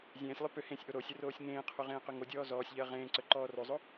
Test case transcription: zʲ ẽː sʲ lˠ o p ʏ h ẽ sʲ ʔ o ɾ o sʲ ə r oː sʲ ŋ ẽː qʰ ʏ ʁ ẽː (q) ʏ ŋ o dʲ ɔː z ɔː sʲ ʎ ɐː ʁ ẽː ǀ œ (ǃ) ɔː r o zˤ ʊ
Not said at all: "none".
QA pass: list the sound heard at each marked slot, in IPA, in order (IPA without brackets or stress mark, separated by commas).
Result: q, ǃ